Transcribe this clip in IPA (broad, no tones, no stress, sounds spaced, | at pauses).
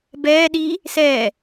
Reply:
b ɛː ɗ iː | s ɛː